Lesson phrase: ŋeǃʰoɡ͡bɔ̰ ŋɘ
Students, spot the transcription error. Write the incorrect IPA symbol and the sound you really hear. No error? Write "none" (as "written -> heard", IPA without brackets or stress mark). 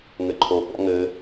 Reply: e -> ɘ